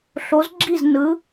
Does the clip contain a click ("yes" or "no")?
yes